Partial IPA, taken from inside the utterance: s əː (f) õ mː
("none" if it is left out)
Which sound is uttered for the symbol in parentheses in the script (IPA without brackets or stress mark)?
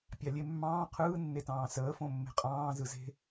f